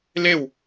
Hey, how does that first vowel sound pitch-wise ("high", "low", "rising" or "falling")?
falling